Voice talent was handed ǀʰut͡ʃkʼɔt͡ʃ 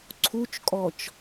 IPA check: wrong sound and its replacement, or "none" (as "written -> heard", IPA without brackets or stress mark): none